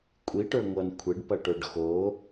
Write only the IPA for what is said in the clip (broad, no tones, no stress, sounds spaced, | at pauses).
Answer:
kʷʼ i ʈ ə˞ ŋʷ ʌ n kʷʰ e ɖ p ʌ ʈ ə˞ ɖ x o